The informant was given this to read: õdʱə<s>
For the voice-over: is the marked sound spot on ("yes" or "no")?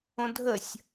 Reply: no